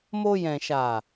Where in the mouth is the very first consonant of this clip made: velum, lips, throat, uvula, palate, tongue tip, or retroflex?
lips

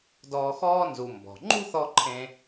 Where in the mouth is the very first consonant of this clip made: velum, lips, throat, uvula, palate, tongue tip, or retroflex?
tongue tip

